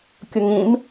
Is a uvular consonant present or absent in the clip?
absent